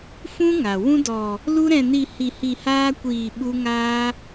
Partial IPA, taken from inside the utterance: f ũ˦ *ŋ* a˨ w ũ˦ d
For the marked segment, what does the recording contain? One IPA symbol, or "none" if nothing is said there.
ŋ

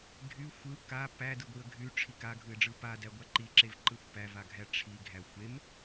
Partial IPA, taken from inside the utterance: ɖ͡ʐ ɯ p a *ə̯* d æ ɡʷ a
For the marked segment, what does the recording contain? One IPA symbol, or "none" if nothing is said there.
none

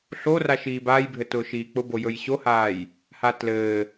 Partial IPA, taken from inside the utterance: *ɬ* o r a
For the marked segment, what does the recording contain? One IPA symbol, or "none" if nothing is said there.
ɬ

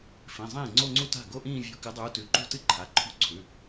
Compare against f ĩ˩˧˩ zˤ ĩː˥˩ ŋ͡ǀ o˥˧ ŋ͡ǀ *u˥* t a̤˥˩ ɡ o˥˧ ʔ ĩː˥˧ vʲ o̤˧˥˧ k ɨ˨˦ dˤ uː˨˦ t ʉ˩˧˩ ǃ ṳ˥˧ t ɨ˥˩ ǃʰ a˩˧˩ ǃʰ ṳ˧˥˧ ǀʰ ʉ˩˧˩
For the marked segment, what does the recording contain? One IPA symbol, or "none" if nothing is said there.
u˥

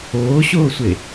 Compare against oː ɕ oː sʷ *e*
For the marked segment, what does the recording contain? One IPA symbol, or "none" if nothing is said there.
e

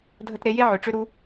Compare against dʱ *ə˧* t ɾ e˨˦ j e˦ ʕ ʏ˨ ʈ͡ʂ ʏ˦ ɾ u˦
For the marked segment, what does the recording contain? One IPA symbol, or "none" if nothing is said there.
ə˧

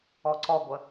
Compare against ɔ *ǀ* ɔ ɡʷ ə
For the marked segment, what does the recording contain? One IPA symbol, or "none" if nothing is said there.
ǀ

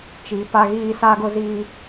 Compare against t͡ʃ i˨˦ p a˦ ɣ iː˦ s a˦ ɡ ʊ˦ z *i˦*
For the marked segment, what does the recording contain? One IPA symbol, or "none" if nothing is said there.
iː˦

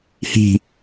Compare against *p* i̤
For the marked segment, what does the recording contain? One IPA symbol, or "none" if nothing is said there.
h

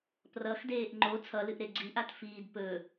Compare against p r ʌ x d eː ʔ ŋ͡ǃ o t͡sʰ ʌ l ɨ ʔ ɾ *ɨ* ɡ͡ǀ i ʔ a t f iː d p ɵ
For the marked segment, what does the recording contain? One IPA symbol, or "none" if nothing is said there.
e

